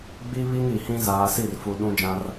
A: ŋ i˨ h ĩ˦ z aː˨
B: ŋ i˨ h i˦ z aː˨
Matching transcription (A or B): A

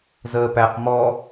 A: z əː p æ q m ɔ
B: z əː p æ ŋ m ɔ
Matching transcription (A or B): A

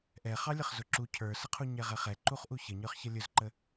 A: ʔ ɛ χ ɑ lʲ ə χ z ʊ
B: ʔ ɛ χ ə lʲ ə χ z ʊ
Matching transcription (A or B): A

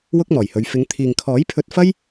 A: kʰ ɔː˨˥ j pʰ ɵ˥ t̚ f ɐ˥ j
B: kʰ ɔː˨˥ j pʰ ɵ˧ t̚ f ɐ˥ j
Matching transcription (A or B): B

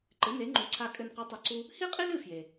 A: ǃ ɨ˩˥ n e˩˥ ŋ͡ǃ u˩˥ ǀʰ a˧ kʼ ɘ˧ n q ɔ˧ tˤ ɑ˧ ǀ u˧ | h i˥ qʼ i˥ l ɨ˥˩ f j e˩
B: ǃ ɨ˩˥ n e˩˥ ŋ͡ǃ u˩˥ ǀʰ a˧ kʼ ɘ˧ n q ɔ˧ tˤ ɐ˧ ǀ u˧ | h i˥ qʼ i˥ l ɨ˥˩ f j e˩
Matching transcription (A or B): B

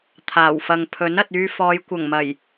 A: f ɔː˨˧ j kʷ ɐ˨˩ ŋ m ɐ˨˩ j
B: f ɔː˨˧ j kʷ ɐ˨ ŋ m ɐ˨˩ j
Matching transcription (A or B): A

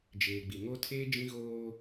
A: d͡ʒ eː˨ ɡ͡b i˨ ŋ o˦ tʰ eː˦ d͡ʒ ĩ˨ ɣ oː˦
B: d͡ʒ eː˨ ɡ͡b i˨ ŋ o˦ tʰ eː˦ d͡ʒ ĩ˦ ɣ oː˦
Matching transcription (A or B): B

